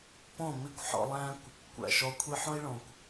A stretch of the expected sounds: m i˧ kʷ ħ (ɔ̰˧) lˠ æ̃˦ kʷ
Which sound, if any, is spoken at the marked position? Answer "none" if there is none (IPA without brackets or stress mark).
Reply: ɔ̰˧